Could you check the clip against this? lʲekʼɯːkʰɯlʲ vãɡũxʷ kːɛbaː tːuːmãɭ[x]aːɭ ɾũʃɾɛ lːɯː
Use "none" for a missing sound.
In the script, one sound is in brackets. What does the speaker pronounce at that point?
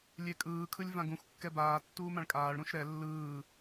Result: kʼ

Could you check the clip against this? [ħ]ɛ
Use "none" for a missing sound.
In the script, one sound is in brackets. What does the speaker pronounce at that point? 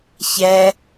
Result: ç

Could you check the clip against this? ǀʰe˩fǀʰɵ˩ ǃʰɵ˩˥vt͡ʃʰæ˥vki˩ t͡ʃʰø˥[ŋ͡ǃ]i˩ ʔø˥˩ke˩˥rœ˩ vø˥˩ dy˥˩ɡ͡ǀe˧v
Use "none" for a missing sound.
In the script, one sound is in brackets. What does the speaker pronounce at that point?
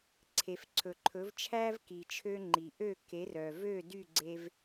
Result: ŋ͡ǃ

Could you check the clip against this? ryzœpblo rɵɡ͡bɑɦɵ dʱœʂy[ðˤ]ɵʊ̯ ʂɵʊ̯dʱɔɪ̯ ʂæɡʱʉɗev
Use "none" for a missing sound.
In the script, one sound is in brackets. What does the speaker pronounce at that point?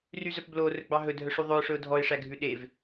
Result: ðˤ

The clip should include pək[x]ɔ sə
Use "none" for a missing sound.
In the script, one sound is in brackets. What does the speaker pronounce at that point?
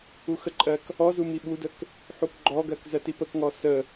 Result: ŋ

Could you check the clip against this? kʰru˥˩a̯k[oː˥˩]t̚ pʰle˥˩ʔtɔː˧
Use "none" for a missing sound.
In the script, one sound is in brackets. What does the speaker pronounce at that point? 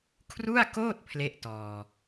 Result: oː˥˩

